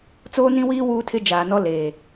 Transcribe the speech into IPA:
t͡s oː˦ n ĩ˦ w iː˦ w uː˦ tʰ ɪ˦ d͡ʒ aː˨ n ɔ˦ l eː˨

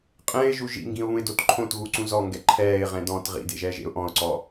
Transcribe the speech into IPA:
qʼ ɛ̃ ɪ̯ ʒ u ʒ ḭ ŋ ɡ ĩ ʊ̯ β ũ ɪ̯ d o t ǃʰ õ t ɣ u ǀ ũ z ɔ ŋ ɡ ɛ ǃʰ ɛː ɪ̯ ʁ ɛ̃ d ɔ̃ t ʁ ḭ d ḛ ʒ ɛː ʒ ḛ ʊ̯ ʔ ɔ̃ ʊ̯ ǀ ɔ

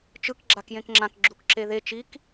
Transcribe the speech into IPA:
t͡ʃ ɯ k ɡ͡ǁ a k j ẽ k ŋ͡ǁ ã k ɡ͡ǁ u k ǁ e ð e t͡ʃ i k

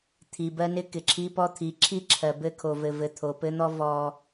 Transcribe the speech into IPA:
t̪ʰ i˨ b ɜ˦ n ɪ˦ k ɪ˨ ǁʰ i˦ p ɔ˦ t̪ʰ i˨˦ ǁʰ i˦ ǁʰ ɜ˨ b ɘ˦ kʰ o˨ v ɘ˨ v ɘ˨ t̪ʰ o˨ p ɘ˦ n̪ ɔ˦ v ɔ˦

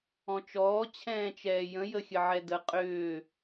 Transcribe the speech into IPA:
ɔ̃ t͡ʃ ɔː t͡ɕʰ ɛ̃ː t͡ʃ ɛː j ə̃ j ə xʲ ə ʕ ɛ d ə qʼ ʏː

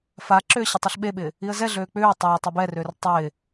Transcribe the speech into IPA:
f a ǁ ʏː ɕ ɪ tˤ i ɬ ɓ e ɓ ɪː | i ə̯ z ɛ ɮ øː k͡p ʏː tˤ ʏː tˤ e b ɛ r ʏː r tˤ ɪː

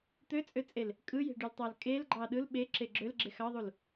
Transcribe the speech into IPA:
t̪ ø t͡sʼ ø t͡sʼ e l | kʼ ɯ j e̤ ɖ y l tˤ ɑ l kʼ e l ɡ͡ǃ ɑ ɗ ɯ l ɓ e ǁ e ɡ͡ǁ ø l ɡ͡ǁ e x ɑ ðˤ u l

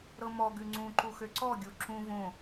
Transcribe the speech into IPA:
ɾ ɤ m ɔ ɡ ʉ ŋ͡ǀ ũ ǃ u x ø ǀ ɔ ɡʲ u ǁ ũ v õ

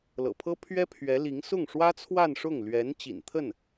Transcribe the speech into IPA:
l ɤ̰˨˩ pʰ ɤ˥ pʰ ɥ ɛ˥ pʰ ɥ ɛ˧˥ l i˧˥ ŋ s ʊ˥˩ ŋ ʂ w ä˥ t͡sʰ w a˥˧ n ʂ ʊ˥˩ ŋ l ɥ ɛ˧˥ n t͡ɕ ḭ˨˩ n t̪ʰ ə˥˩ n

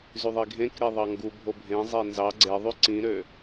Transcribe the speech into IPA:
z y ðˤ i ɡʱ ẽ k ɾ e ðˤ ɑ ŋ ɡ u bʱ o bʱ ẽ zˤ e n z ɑ ɡ͡ǀ e ðˤ y ǀ ĩ ɾ ø

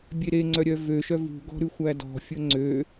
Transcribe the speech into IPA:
bʲ e ɾ e ŋ͡ǀ œ ɾʲ œ v ø ʃ œ v ṳ ɡ ɔ̤ ɾ ʉ xʷ æ d ɔ̤ fʲ ɵ ŋ͡ǀ ø

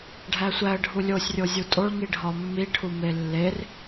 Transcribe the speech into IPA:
ɖʱ æ sʷ æ ə̯ ɖʱ u lʲ o sʲ rʲ o zʲ u tʼ o ɭ ŋ i ɖʱ ɒ mː i ʈʰ u m e lː e r

